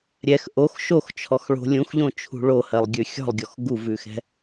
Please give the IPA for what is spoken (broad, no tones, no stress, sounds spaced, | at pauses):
ɾʲ ɛ x ʔ o x ʃ o x t͡ʃʰ ɔ x ɭ o̤ lʲ ũ x ʎ õ t͡ʃʰ ṳ ɭ o h ɜ lˠ ɡʲ ʉ xʲ ɔ̤ lˠ ɡʲ ɔ x ɡ u v ʉ x ɛ̤